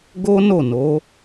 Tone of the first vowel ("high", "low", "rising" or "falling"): high